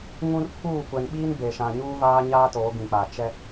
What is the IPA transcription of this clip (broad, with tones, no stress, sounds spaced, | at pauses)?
ŋ ũ˦ r pʰ uː˦˨ kʷ ɛ˨ n ɓ iː˦ n b e˨ ʃ ã˨ ɲ uː˦ v aː˦ ɲ aː˦ t oː˨˦ ɡ ĩ˨ k͡p a˨ t͡ʃ ɛ˦